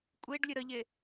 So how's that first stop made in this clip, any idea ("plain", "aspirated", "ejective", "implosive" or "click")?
ejective